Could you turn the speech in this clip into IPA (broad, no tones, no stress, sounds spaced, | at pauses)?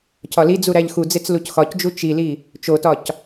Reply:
cʰ ɒ l i d͡z u ɾ æ ʎ x u d͡z e t͡s l u c x ɒ c d͡ʒ u t͡ʃ i l i | t͡ʃ o t ɒ c